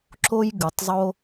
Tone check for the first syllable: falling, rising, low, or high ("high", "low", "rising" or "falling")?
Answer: high